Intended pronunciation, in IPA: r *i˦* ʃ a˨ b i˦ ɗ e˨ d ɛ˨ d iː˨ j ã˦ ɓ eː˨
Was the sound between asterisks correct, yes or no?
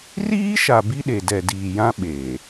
no